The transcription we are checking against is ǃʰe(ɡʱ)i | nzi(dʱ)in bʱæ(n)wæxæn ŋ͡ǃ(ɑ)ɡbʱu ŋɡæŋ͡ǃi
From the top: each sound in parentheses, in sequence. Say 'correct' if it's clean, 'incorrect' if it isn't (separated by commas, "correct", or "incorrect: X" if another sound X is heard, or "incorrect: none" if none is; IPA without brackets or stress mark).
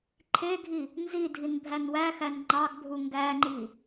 correct, correct, correct, correct